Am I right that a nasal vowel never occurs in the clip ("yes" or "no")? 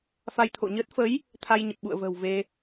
yes